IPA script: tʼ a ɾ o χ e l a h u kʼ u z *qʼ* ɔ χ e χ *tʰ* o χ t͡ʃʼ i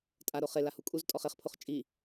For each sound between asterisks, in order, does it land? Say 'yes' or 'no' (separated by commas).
no, no